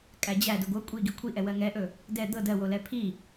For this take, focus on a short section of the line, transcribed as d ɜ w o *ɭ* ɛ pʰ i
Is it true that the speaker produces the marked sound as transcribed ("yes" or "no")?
no